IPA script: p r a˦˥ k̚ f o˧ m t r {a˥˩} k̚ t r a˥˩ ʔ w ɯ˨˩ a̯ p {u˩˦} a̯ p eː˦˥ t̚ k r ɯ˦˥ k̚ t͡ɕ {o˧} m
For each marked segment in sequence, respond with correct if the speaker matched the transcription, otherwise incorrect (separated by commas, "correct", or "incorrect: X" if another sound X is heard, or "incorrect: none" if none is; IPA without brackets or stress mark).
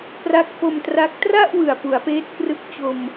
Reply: incorrect: a˦˥, correct, correct